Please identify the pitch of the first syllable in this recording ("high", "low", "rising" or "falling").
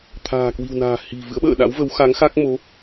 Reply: low